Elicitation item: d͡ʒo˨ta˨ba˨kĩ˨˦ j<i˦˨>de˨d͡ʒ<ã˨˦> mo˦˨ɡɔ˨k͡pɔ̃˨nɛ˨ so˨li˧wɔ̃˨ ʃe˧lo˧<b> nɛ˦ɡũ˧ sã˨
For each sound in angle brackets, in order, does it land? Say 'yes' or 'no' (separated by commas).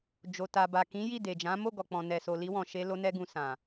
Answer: yes, yes, no